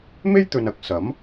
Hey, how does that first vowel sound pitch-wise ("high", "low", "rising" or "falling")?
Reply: high